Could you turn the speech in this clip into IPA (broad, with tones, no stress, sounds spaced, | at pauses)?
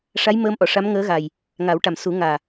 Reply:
ʂ a˧˥ j m əː˧ m ʔ ɔ˨˩˨ ʂ a˧˥ m ŋ əː˧˥ ɣ a˨˩ j | ŋ a˨˩˦ w ʈ a˨˩ m s u˨˩˦ ŋ aː˨˩